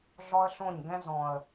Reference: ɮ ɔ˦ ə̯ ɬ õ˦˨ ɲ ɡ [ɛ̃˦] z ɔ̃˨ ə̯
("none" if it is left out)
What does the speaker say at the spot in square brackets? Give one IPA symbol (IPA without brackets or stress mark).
ɛ̃˦